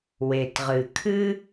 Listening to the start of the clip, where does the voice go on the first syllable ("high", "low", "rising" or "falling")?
low